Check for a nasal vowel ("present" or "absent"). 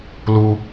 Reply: absent